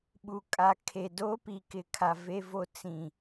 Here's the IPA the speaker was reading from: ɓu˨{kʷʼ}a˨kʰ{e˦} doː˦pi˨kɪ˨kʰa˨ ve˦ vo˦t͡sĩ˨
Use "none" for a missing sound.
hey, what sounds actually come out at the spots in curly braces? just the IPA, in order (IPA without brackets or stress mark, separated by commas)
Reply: kʼ, e˨